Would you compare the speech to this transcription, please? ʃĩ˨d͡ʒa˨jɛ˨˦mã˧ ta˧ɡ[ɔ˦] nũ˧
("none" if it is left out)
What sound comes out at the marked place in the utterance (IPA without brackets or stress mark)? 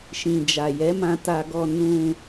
ɔ˧